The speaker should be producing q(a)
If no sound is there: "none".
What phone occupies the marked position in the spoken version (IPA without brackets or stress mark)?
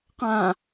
ã